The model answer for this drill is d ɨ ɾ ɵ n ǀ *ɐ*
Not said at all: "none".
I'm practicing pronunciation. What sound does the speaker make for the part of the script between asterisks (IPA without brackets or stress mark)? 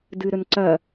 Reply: ɐ